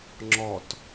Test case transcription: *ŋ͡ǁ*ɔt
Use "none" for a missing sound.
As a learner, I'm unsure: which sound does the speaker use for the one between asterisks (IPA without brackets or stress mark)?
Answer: ŋ͡ǁ